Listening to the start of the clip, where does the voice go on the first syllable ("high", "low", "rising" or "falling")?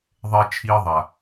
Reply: high